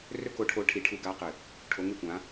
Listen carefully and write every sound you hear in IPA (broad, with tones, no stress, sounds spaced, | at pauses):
r ɵ˦ k o˨˦ ʈʰ o˨˦ ʈʰ i˨˦ ʈʰ u˧˩˧ ɡ a˨˦ q ɨ˨˩ | ʈʰ o˨˦ ŋ e˦˨ kʷ ã˨˦